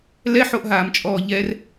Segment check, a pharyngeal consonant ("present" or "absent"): present